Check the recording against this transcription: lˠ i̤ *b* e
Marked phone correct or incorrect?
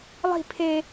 incorrect